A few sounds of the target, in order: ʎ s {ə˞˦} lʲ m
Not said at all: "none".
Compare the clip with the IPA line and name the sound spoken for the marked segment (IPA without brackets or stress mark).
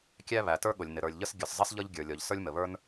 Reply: ə˞˦